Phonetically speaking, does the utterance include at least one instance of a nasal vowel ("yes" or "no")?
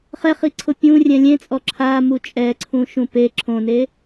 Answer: yes